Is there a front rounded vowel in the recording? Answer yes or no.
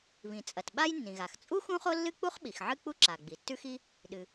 no